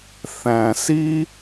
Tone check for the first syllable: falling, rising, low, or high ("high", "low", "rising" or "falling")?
low